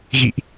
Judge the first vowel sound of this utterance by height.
high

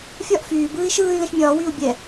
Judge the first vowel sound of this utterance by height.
low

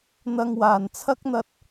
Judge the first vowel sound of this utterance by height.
low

